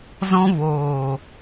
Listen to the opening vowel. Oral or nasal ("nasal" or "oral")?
nasal